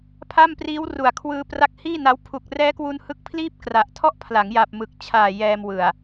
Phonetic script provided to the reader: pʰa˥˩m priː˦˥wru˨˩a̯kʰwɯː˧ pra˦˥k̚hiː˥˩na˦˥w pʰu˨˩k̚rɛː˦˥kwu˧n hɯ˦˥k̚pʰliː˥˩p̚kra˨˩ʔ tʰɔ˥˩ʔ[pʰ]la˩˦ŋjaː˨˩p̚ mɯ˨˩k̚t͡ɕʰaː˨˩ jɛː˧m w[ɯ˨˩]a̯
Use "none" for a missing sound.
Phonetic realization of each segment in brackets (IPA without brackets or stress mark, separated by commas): pʰ, ɯ˨˩